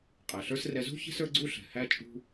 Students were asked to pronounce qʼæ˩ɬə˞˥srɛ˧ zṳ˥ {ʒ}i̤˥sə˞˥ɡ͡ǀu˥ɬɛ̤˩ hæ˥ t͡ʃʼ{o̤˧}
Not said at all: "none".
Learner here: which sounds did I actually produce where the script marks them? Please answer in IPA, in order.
ç, ṳ˧

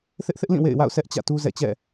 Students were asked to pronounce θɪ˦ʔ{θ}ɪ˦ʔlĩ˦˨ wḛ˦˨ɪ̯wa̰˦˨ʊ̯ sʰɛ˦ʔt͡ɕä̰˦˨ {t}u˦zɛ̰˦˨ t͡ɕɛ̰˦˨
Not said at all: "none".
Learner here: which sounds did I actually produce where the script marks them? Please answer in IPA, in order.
θ, t

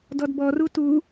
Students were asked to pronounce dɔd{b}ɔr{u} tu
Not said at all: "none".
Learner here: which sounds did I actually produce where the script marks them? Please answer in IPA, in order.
b, u

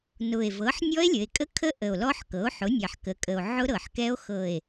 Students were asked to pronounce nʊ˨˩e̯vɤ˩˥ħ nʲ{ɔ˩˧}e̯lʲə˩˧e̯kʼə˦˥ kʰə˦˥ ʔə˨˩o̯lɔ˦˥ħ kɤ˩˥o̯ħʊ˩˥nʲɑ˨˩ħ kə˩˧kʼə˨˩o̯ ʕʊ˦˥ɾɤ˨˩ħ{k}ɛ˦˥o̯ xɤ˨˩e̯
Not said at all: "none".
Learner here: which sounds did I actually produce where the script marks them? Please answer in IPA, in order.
ɔ˦˥, k

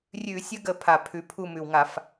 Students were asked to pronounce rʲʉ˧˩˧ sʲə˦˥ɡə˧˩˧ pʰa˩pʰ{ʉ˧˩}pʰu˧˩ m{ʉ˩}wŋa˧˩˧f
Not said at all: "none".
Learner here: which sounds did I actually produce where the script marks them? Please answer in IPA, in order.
ʉ˩, ʉ˩

